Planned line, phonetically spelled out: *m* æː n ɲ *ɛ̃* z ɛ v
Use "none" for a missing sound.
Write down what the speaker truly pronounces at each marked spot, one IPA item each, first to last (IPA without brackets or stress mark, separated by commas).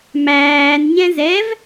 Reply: m, ɛ̃